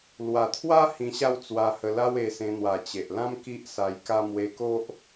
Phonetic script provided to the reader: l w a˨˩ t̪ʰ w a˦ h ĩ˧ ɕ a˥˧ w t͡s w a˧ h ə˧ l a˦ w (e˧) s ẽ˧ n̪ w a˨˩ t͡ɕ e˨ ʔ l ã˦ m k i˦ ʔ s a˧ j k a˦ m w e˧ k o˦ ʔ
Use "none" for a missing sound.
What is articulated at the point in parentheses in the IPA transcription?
e˧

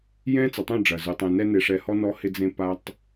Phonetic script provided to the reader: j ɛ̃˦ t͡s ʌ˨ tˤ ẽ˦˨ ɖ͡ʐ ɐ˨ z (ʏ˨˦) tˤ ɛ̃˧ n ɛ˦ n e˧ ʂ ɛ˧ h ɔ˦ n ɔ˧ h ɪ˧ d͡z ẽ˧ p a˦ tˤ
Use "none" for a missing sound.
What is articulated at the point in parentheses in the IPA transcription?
ʏ˨˦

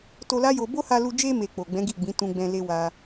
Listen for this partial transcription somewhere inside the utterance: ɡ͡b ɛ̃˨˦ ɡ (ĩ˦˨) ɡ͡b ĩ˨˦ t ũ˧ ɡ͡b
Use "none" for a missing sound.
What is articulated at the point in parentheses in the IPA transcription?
i˦˨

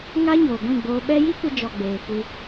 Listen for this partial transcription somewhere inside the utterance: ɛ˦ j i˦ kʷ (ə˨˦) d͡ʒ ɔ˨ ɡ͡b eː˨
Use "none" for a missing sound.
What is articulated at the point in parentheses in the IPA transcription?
ə˧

